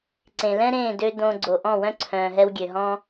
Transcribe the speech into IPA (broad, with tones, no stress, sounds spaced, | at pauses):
ǀ ẽ˨ l ɛ̃˦ ɾ ẽː˦˨ d ø˧ d õ˧ ɡ͡ǀ o˨ ʔ ɔ̃˦˨ w œ̃˦ ǀʰ œ̃ː˨ ɦ ɛ˧ w ɡʲ ø˨ ɦ ɔ̃˦